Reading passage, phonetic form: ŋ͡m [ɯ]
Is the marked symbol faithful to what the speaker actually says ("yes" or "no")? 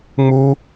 no